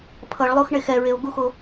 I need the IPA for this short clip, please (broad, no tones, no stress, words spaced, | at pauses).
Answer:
pʰʌɭlˠoxɳex ɛɹeo̯ ɡuxo